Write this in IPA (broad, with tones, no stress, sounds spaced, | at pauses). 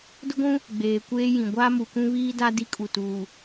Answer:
d ʊ˦ ɡʷ ũ˦ | ɡ͡b eː˨ kʷ eː˦ j ĩ˨ ɡʷ aː˦ m u˨ k ũ˦ β iː˦ d a˦ d i˦ kʼ u˨ t uː˨